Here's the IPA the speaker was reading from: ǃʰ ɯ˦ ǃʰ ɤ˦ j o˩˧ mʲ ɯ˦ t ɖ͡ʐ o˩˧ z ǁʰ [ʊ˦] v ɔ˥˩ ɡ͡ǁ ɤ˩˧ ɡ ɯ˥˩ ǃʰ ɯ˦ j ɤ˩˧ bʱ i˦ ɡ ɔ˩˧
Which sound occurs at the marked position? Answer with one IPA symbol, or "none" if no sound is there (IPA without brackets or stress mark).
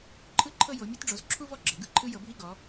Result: u˦